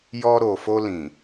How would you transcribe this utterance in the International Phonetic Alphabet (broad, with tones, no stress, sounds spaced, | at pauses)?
j ɔ˧ ɾ o˨ f o˧ l ĩ˨